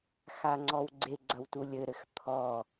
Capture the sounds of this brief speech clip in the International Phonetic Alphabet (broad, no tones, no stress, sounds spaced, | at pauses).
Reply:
x a ŋ͡ǀ ɔ w ɡ͡ǀ e ɡ͡ǀ ɐ w t u lʲ ɘ ɾ ɘ x t̪ʰ ɔ